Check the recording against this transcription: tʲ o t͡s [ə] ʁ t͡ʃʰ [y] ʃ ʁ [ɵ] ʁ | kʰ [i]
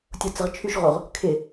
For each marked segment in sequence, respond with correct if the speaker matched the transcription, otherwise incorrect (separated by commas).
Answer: correct, correct, incorrect, incorrect